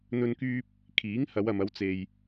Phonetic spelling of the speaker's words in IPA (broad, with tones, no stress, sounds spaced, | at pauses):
n̪ ɵ˧ n k yː˧ p̚ | kʰ iː˨˥ ŋ h ɐ˨˧ w ɐ˨ m ɐ˨˧ w t͡s e˨ j